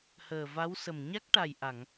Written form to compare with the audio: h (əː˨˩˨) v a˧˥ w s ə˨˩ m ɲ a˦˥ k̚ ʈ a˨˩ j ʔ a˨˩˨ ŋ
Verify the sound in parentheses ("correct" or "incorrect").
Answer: incorrect